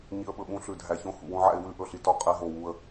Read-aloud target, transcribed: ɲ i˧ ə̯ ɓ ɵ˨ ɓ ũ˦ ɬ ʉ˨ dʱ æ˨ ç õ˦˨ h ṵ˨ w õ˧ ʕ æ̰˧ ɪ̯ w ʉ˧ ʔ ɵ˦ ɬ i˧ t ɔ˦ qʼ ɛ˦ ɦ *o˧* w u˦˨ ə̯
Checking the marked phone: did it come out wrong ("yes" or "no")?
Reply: yes